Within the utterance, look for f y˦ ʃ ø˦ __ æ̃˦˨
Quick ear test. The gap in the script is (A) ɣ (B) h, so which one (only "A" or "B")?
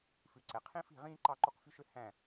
B